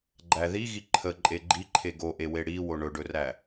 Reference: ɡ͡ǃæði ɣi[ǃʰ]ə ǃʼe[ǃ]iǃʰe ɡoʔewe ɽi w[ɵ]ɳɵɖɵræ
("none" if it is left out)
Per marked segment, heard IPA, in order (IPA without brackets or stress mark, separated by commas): ǃʰ, ɡ͡ǃ, o